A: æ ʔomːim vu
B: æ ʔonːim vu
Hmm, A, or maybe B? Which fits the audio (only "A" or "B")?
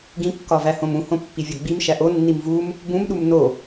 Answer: B